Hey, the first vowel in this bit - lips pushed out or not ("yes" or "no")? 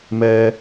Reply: no